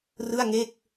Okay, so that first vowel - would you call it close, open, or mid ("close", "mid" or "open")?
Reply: close